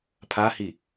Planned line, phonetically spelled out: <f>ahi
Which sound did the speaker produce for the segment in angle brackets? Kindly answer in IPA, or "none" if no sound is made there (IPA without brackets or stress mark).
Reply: pʰ